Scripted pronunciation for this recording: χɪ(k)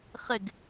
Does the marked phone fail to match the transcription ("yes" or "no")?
yes